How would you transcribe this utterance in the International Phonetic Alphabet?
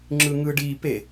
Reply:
ŋ͡ǁ ɯ ŋ ɯ ɖ i p e

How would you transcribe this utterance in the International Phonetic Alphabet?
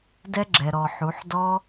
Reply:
d ɛ˦ ɡ͡ǁ ɛ˨ ɾ ɔ˨ ħ u˨˦ ħ d ɔ˦

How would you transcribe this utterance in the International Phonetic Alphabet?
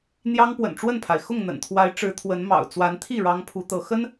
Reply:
n̪ j ɑ˦ ŋ p w ə̰˨˩ n ʈ͡ʂ w ə˥˨ n pʰ a˩ ɪ̯ x ʊ˥˨ ŋ n̪ ə̰˨˩ n t̪ʰ w a˨˦ ɪ̯ ʈ͡ʂ ɻ̩˨˦ t̪ʰ w ə˨˦ n m ɑ̰˨˩ ʊ̯ t͡s w a˨˦ n t̪ʰ i˥˨ ɻ ɑ˦ ŋ pʰ u˨˦ t̪ ɤ˨˦ x ə˦ n

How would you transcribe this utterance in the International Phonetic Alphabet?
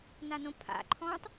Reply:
n a n õ pʰ a̰ ǃʰ ɔ̃ tˤ

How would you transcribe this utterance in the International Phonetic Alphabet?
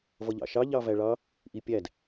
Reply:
v ʌ ʎ ɑ̰ ʃ ɑ ʎ ɑ v æ ɭ ɑ | ʔ i pʲ æ d

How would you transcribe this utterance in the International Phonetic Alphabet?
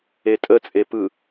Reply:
e tʼ ə t͡sʼ e p ɯ

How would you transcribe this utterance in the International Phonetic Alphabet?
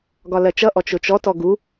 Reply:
ɡ ɒ l ɜ t͡ʃ ʌ ʔ ɔ t͡ʃ ʊ t͡ʃ ɔ t ɔ ɡ u

